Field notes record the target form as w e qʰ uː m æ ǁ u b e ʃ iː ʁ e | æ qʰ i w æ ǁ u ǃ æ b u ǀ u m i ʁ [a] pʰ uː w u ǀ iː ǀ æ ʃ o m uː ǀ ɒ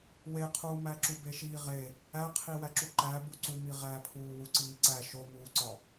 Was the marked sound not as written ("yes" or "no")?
yes